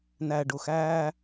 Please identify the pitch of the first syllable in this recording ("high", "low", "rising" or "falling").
low